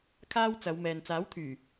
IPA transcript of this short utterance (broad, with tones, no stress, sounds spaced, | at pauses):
kʰ aː˥ w t͡s ɐ˨˧ w m ɛː˨ n t͡s aː˨˥ w t̪ʰ yː˨˩